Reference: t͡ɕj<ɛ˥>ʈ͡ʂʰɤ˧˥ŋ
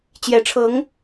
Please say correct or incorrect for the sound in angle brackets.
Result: incorrect